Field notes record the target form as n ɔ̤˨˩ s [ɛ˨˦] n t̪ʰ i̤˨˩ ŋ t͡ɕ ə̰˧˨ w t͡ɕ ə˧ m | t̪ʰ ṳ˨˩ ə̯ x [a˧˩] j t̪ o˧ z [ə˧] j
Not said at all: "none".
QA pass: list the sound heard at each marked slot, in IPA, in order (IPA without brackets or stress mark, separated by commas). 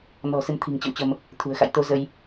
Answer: ɨ˨˦, a̰˧˨, ə˧